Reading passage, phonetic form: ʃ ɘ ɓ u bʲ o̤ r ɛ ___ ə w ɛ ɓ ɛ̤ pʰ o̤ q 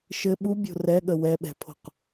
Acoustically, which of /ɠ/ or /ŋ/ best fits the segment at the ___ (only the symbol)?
ɠ